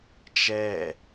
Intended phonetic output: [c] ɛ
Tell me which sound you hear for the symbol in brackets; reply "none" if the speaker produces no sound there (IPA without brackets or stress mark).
t͡ʃ